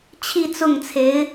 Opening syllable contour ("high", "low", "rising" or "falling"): falling